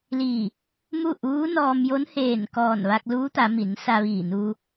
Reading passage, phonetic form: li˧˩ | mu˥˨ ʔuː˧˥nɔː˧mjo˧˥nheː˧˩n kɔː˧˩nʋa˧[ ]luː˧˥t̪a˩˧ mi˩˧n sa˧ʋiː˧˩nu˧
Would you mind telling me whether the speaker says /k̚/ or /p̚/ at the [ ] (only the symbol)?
k̚